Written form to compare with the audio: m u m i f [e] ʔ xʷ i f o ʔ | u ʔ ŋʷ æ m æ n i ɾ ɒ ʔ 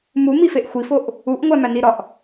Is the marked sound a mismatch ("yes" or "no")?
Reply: no